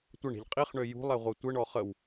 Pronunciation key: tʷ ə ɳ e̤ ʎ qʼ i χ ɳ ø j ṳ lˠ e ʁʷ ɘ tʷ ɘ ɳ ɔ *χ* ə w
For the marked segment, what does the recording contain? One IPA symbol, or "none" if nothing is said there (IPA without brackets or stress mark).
χ